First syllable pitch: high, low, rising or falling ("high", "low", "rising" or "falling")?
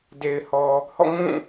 low